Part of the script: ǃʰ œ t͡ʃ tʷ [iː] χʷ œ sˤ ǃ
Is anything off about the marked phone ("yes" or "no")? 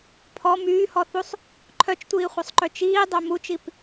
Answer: no